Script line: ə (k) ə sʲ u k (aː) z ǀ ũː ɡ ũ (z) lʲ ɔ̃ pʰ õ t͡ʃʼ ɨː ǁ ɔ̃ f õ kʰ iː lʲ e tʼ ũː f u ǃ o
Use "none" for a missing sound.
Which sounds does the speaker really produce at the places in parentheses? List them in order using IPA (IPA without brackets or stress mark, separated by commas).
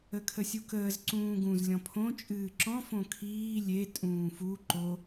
kʰ, əː, z